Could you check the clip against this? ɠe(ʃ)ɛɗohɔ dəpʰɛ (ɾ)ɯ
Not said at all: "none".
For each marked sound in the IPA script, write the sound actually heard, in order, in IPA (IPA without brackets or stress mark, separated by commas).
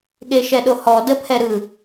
ʃ, ɾ